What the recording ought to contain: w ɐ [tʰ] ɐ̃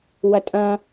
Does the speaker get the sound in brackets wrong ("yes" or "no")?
yes